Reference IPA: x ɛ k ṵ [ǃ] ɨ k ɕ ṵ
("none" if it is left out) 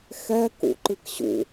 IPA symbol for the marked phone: ǃ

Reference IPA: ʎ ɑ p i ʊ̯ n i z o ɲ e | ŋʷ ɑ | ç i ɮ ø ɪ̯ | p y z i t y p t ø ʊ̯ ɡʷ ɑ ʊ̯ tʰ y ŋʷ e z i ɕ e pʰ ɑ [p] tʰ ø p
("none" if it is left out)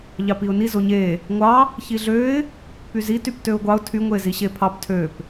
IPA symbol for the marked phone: p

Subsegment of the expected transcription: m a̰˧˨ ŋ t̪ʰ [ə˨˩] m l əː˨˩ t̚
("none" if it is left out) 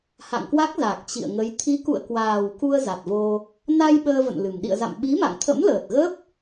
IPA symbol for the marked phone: ə̰˧˥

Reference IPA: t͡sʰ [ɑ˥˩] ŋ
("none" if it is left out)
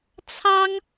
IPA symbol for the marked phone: ɑ˥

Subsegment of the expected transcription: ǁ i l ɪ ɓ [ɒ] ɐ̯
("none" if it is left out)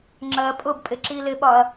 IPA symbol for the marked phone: ɒ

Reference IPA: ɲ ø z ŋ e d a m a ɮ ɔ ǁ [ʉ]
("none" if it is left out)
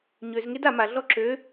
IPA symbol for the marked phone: ø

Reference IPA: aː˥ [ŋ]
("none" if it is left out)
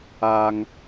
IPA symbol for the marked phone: ŋ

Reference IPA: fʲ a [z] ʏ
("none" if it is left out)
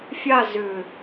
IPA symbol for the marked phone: z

